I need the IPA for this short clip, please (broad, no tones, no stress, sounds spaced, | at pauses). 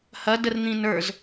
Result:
h ɐ d ə r n̪ ĩ n ə˞ z